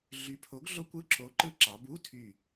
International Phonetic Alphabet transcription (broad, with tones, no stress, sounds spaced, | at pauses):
ɮ y˨˥ pʰ o˨˥ ɡ ɮ o˦˥ kʷ ɯ˧˥˧ ǁ o˨˥ ǃ ɯ˦˥ ǁ ɑ˩˧ b u˧˥˧ tʰ y˧˩